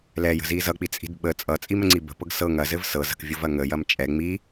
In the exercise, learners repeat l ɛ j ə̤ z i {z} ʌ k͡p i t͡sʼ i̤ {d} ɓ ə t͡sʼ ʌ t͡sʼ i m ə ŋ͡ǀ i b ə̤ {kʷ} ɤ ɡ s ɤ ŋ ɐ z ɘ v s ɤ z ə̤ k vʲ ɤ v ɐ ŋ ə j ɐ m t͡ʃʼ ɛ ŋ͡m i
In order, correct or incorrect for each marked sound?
correct, correct, incorrect: p

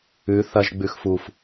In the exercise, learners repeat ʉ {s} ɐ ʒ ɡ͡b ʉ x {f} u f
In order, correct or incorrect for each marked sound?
incorrect: θ, correct

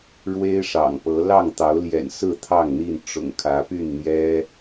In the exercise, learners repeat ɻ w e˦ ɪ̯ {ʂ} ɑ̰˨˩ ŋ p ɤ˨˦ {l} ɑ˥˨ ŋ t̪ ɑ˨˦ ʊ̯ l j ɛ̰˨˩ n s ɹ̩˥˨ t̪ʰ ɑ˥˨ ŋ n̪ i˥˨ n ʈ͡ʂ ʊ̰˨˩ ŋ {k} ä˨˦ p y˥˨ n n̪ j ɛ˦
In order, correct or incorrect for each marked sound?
correct, correct, incorrect: kʰ

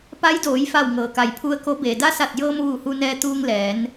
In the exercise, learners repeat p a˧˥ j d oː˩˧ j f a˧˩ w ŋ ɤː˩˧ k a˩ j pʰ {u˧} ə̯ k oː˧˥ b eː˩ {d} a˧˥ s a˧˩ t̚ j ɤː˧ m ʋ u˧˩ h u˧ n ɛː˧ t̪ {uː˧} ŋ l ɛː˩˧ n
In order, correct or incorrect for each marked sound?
correct, correct, correct

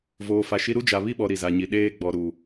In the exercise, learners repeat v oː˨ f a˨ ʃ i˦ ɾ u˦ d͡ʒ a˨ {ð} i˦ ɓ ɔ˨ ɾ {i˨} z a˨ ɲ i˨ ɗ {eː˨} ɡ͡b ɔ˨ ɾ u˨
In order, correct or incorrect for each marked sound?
incorrect: β, correct, incorrect: eː˦

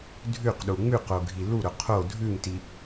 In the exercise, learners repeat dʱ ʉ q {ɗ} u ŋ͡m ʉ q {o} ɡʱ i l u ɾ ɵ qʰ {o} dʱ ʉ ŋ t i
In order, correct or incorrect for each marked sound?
correct, correct, correct

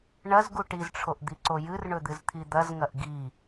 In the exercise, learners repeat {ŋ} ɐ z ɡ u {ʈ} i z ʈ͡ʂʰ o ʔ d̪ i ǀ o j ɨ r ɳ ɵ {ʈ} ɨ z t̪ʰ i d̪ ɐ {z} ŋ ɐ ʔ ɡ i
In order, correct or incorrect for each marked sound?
incorrect: ɳ, correct, incorrect: d̪, correct

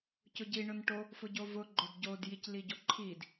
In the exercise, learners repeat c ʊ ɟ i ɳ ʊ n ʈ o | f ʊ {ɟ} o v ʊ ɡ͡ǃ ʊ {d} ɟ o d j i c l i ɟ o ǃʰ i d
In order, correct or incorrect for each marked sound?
correct, correct

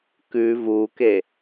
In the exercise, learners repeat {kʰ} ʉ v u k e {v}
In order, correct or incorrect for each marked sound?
incorrect: k, incorrect: none

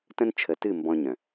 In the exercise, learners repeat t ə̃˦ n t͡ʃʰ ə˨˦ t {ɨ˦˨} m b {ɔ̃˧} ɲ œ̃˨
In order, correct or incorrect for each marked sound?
correct, correct

